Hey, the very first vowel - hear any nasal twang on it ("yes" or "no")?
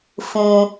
yes